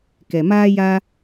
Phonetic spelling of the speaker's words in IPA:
k ɛ˨ m aː˦ j a˦

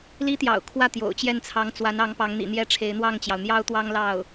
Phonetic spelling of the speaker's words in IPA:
l i˥ t̪ j ɑ̰˨˩ ʊ̯ kʰ w ä˥˩ t̪ j o̰˨˩ ʊ̯ t͡ɕ j ɛ˥˩ n t͡sʰ ɑ˧˥ ŋ t͡s w a˧˥ n ɑ˧˥ ŋ p ɑ˧˥ ŋ n̪ ḭ˨˩ n̪ j ɛ˥˩ ʈ͡ʂʰ e˧˥ ɪ̯ n̪ w ɑ˥˩ ŋ t͡ɕ j ɑ˩ ʊ̯ n̪ j ɑ˥ ʊ̯ t̪ w ɑ˥ ŋ l ɑ˥˩ ʊ̯

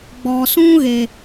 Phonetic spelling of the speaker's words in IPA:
ɡ͡b ɔ˨ s ũ˦ ɣ e˨

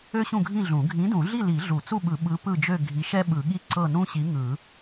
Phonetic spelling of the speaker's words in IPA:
ø˥ ɕ ũ˥˨ ɡʱ ĩ˥˨ ɮ ũ˨˩˦ ɡʱ ĩ˨˥ d ũ˨˩˦ ɮ i˥˨ l i˨˩˦ ɮ u˨˩˦ t͡s u˥˨ ɓ ɯ˨˩˦ ɓ ɯ˨˥ p ɯ˥˨ d͡ʒ ø˥˨ ɡʱ i˨˥ ʃ ɛ˥ ɓ ɯ˨˩˦ ɠ i˥˨ ǀ ɤ˥˨ n ũ˥ ɕ i˨˥ ŋ ɯ˨˩˦

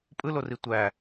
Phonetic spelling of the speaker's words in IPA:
pʼ ɯ l o r i tʷ æ

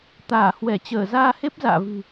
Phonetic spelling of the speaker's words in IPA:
t̪ aː˧˩ h w ɛ˧˩ t͡ɕ əː˧˩ z aː˧ h e˦˥ p̚ z a̰ː˧˨ v ɨ̤˨˩

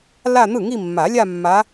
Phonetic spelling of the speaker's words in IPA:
l a˥˧ n̪ ɯ˥˩ ŋ i˥˧ mː a˨˩˦ lʲ a˥˧ mː a˧˥

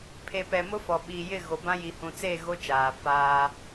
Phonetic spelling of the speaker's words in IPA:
pʰ e˨ p ɛ˨ m ʊ˦ f ɔ˨ ɓ iː˨ j ɪ˦˨ ɣ o˨ b ã˦ j i˨ h ũ˨ t͡s e˦˨ ɣ o˦ t͡ʃ aː˨ f aː˦

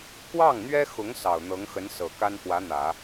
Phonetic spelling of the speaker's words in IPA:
k w ɑ˥˩ ŋ n̪ ɥ ɛ˥ x ʊ˧˥ ŋ s ɑ˨˩ ʊ̯ n̪ ɤ˧˥ ŋ x ə˧˥ n s ɤ˨˩ k a˥ n x w ä˧˥ n̪ ä˨˩˦

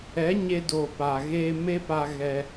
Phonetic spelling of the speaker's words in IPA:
ɛ˨˦ ɲ e˧ d oː˨ p a˨ ɣ eː˧ m e˦ p a˧ ɣ ɛ˧

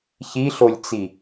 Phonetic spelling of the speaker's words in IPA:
ç i ɬ o lʲ t͡s i

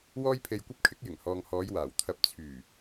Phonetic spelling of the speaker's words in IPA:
w ɔː˥ j pʰ e˧ j kʷ ɐ˥ p̚ kʰ ɪ˨˥ k̚ j ɪ˨˩ ŋ h ɔː˨ ŋ h ɔː˨˧ j w aː˨˩ w t̪ʰ ɐ˨˥ p̚ t͡sʰ yː˨˩

